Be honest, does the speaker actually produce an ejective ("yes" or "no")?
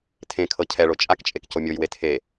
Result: yes